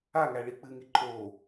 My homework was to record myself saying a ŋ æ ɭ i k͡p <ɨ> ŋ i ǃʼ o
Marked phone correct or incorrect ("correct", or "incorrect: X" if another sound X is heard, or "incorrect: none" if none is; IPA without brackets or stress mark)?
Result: correct